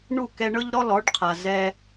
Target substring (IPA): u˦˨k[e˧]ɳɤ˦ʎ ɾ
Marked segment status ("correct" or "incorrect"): incorrect